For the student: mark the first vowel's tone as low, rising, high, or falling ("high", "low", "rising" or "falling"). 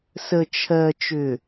low